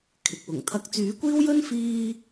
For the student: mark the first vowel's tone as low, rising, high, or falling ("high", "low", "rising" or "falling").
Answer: low